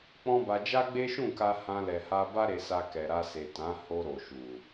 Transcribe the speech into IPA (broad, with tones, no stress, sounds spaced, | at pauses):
k͡p ɔ̃˦ b a˧ d͡ʒ a˦ ɡ͡b e˦ ʃ ũ˦˨ k a˧ h ã˧ l ɛ˨ h a˧ b a˦ ɾ e˧ s a˧ k ɛ˨ ɾ a˧ s e˨ t ã˨˦ h o˧ ɾ o˨ ʃ u˨